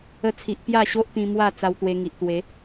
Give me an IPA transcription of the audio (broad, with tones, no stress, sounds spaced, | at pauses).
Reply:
ə˧ t͡sʰ i˨ ʔ p j a˥˧ ɕ o˦ ʔ t̪ ĩ˧ m w a˥˧ t͡s a˧ w t̪ w e˧ ŋ i˨ ʔ t̪ w e˨˦